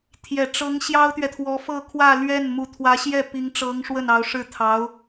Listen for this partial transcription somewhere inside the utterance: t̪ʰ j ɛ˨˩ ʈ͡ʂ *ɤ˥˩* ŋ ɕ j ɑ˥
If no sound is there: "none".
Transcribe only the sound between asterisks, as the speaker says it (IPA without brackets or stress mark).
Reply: ɤ˧˥